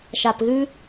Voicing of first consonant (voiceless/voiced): voiceless